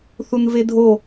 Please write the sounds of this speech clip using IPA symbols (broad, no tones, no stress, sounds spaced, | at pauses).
θ u n v e dʱ o